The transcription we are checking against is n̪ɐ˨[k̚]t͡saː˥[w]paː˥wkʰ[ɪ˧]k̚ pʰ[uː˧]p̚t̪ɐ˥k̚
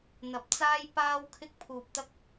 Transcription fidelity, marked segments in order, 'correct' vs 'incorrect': incorrect: p̚, incorrect: j, incorrect: ɪ˥, correct

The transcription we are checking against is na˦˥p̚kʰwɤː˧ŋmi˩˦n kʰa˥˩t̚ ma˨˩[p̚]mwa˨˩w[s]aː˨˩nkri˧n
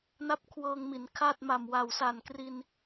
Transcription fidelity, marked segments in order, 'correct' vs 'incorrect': incorrect: none, correct

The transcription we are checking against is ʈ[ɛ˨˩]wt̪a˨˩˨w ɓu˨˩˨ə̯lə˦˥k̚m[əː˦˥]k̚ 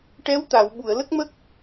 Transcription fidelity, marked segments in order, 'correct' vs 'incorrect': incorrect: ɛ˧˥, incorrect: ə˦˥

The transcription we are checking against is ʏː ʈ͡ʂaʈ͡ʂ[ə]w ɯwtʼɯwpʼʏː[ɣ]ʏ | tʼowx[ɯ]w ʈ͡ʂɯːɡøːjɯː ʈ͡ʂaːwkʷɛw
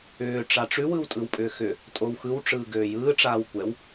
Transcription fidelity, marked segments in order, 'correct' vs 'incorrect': incorrect: ʉ, incorrect: x, correct

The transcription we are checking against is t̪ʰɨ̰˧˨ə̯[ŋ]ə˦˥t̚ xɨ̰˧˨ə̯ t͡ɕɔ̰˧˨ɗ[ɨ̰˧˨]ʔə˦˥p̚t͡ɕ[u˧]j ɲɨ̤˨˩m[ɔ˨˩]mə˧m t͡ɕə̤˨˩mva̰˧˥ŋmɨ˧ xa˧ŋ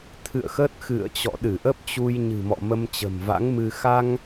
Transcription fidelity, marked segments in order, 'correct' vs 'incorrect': incorrect: x, incorrect: ɨ˧˩, correct, incorrect: ɔ̰˧˨

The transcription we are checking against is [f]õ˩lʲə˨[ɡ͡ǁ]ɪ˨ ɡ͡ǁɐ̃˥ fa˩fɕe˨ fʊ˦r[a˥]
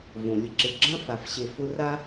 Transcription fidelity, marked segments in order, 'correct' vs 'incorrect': incorrect: v, incorrect: ǁ, correct

